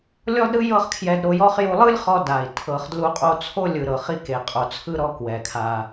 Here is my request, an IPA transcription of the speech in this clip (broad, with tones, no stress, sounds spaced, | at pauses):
lʲ ɔ˥ d ɾ ɯ˥ j ɤ˥ χ kʰ j ɛ˧ d ɾ o˧ j ɔ˥ χ j u˧ lˠ ɯ˥ lʲ χ ɔ˧ d a˩ i̯ tʰ ɤ˩ χ d l u˧ qʼ o˧ t͡sʰ o˥ lʲ ɯ˩ ɾ ɤ˩ χ i˧ k e˩ qʼ o˩ t͡sʰ ɯ˧ ɾ ɔ˧ k w ɛ˩ kʰ a˩